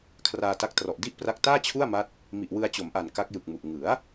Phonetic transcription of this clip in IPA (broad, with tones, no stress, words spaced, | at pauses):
kʰraː˧ta˦˥k̚ trɔ˨˩ʔdi˥˩ʔpra˦˥k̚ taː˥˩t͡ɕʰu˥˩a̯ma˦˥t̚ | mi˨˩ʔwɯ˧a̯t͡ɕo˩˦mʔa˨˩n ka˦˥k̚jɯ˨˩k̚mu˨˩ʔ ŋɯ˩˦a̯